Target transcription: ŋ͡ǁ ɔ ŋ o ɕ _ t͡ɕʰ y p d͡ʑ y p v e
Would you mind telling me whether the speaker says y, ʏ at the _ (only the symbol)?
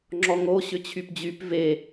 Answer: ʏ